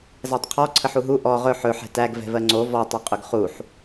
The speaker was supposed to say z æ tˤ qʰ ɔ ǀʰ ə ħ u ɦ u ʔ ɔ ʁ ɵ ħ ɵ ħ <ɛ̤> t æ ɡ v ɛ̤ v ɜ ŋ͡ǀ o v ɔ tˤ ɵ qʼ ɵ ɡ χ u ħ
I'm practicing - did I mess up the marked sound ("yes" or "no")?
no